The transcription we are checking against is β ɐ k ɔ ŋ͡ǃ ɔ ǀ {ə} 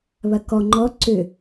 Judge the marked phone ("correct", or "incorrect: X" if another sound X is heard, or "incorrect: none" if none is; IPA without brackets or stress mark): incorrect: ʏ